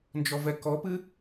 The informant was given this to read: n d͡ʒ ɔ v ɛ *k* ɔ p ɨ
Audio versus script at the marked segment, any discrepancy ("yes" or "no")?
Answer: no